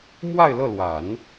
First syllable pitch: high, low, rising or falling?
falling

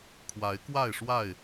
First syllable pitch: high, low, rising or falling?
rising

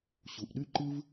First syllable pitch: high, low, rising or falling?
low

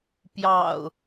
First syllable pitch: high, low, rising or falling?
low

